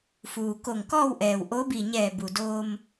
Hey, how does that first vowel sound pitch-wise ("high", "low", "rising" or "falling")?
low